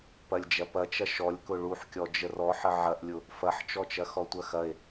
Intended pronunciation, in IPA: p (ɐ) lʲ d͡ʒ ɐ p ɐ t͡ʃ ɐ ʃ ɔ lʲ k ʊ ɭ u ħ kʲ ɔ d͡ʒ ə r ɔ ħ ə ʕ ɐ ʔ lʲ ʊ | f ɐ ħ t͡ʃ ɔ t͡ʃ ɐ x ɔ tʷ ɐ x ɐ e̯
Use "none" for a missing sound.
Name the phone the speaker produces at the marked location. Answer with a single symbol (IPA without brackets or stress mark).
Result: ɐ